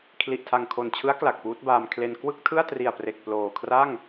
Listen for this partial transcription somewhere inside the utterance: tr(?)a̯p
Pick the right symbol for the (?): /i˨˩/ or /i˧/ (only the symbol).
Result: i˨˩